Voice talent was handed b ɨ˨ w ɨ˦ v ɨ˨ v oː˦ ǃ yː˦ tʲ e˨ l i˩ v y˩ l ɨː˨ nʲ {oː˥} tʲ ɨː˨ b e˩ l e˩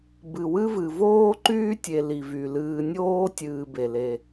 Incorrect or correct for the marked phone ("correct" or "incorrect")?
incorrect